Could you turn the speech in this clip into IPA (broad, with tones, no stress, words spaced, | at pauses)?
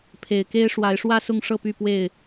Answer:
pʰe˨˩ɪ̯ke˦ɪ̯ʂwa˨˦ɪ̯ ʂwä˥˨sʊ˥˨ŋʂɤ˥˨ py˥˨pwe˥˨ɪ̯